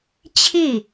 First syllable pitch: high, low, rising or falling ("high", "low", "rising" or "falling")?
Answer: falling